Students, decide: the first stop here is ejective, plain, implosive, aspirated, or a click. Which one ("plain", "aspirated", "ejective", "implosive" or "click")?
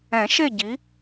plain